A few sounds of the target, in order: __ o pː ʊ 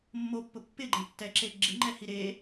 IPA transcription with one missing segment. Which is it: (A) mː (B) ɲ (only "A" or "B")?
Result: A